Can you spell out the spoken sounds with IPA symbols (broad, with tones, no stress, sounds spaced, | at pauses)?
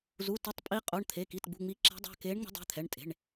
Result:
z u˩˧˩ t e˨˦ tˤ pʼ i˨˦ qʼ o˩˧˩ ɳ t̪ʰ e˩˧˩ k i˩˧˩ t ɡ͡b ṳ˩˧˩ ŋ͡m i˨˦ ǁ ɛ̤˨˦ dˤ a̤˩˧˩ k e˨˦ ɳ ŋ͡m o̤˨˦ dˤ ɛ̤˩˧˩ t̪ʰ ɛ˩˧˩ ɳ tʼ e̤˩˧˩ ɳ